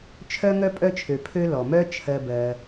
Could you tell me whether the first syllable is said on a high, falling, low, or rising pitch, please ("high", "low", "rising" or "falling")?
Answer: high